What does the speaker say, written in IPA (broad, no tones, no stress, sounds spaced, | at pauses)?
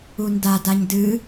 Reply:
u n d a d a ɲ d ɨ